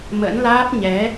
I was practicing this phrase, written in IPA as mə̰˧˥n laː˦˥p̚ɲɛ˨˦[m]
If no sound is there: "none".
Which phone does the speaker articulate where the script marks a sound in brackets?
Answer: none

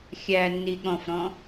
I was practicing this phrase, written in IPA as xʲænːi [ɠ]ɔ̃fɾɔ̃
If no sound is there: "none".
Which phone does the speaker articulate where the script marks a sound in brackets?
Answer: ɠ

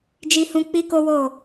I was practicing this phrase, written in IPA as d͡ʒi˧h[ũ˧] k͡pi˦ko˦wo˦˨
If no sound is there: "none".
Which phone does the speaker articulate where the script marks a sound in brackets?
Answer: ũ˧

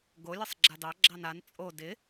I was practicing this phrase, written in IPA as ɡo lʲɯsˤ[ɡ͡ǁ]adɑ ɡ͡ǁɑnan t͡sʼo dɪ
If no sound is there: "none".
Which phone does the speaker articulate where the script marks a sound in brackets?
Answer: ɡ͡ǁ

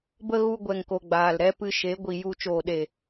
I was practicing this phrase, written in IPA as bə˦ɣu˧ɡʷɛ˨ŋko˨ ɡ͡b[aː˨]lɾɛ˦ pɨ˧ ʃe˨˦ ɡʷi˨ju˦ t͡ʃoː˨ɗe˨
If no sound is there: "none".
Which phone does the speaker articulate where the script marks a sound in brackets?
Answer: aː˨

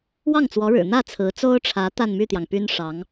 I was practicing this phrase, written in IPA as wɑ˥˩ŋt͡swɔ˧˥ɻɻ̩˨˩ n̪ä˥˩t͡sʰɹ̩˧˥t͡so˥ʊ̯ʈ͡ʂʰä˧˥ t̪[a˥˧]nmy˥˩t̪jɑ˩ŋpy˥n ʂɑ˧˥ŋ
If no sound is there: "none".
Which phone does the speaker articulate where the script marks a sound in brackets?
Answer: a˥˧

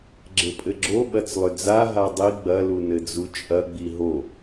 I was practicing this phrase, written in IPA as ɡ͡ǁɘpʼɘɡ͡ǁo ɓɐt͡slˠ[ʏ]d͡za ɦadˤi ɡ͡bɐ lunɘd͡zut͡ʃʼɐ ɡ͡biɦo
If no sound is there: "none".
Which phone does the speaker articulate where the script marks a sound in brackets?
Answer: ʏ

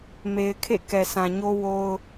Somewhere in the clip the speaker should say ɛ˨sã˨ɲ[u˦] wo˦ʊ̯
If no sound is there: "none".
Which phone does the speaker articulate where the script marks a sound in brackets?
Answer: o˦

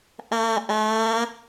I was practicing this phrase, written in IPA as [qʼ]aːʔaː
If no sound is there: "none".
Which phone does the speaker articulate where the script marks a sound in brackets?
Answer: ʔ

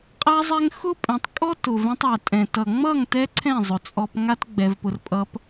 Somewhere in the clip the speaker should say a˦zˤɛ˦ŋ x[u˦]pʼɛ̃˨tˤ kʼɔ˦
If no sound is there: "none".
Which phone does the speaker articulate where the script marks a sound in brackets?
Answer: ʊ˦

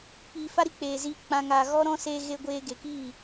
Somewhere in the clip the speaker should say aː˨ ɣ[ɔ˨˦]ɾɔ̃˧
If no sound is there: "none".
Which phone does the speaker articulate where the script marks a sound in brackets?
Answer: ɔ˧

